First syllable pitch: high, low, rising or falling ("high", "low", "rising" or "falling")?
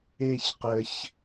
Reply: falling